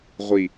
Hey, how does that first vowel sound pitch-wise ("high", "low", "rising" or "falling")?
low